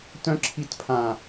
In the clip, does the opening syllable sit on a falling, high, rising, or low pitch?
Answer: high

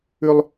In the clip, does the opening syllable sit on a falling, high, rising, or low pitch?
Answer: high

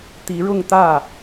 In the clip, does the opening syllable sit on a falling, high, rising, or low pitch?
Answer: rising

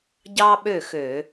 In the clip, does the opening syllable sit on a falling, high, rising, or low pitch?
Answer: high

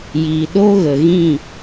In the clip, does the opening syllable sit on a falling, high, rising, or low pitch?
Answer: low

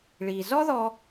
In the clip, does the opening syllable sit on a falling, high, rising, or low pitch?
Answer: low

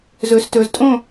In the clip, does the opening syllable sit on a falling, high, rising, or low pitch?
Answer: low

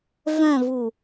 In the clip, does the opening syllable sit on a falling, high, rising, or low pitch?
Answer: falling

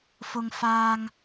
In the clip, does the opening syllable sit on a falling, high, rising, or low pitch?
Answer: low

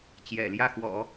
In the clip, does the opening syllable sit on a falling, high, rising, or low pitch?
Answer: low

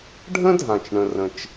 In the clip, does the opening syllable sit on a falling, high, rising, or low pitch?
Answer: high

